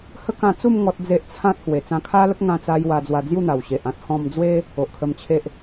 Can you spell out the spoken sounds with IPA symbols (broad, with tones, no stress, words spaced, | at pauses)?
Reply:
hə˦kã˧t͡su˥˧m ŋɔ˦t̚d͡ze˦ʔ t͡sʰã˦t̚ hwe˨˩t͡sã˧kʰa˦lə˦k̚ ŋã˥˧t͡sa˦j wa˧d͡zwa˧ d͡zju˥˧n̪a˨˩wɕe˨ʔã˦t̚ hɔ̃˧md͡zwe˦ | o˨ʔkʰə˧mt͡ɕʰe˦ʔ